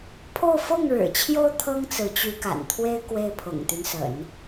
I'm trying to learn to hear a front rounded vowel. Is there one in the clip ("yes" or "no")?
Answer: yes